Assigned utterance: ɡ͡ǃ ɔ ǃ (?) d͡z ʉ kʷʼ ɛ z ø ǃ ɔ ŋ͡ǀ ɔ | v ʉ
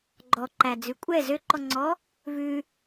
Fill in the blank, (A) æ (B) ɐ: A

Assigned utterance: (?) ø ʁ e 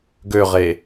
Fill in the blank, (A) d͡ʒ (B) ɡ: B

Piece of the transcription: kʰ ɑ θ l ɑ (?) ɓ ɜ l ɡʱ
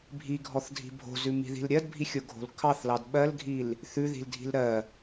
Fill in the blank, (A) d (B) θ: A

